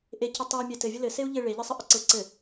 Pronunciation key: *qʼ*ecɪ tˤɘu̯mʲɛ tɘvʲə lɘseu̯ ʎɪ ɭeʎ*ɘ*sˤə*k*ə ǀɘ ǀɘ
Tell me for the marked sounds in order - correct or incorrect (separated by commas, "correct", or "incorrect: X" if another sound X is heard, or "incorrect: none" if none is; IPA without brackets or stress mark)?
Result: incorrect: ʔ, correct, incorrect: ʔ